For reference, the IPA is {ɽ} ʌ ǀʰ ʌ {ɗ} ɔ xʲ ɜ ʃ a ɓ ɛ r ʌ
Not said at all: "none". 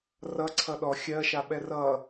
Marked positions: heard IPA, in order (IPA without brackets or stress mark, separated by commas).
r, ɗ